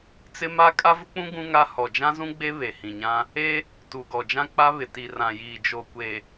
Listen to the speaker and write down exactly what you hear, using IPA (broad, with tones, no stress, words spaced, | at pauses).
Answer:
t͡sɪ˦ma˦ kʼa˦vʊ˦k͡pũ˦ ɡũ˦ŋa˦ hɔ˨d͡ʒã˦zũ˦ɡ͡be˦ βe˨hĩ˨ɲã˦ | e˦ | tu˨ɡɔ˨ d͡ʒã˦k͡pa˦βɪ˨ ti˨rã˨jiː˨ d͡ʒo˨kʷe˨